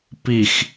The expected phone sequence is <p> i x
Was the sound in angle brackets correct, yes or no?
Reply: yes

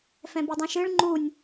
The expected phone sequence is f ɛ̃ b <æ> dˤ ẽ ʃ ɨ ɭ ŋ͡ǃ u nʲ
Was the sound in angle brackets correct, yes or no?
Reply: no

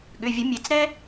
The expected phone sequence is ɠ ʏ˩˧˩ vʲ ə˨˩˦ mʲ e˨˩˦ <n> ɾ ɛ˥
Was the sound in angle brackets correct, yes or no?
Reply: no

